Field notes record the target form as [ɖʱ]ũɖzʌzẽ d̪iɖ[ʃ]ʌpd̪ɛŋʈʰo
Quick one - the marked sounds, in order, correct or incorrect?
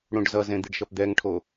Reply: incorrect: ɽ, correct

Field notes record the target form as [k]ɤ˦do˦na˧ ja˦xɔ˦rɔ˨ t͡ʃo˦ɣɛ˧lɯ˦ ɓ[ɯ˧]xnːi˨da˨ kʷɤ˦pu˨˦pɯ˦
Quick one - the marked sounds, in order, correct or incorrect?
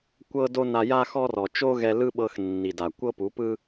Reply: incorrect: kʷ, incorrect: ɤ˧

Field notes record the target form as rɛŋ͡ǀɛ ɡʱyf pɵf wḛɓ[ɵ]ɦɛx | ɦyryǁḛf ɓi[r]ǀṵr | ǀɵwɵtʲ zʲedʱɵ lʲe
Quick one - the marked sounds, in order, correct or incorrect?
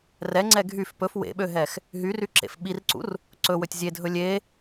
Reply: incorrect: ø, correct

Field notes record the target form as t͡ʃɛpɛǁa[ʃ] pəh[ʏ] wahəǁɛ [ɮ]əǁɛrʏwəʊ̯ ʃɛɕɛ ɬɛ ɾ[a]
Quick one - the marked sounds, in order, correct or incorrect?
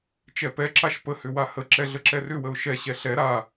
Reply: correct, correct, correct, correct

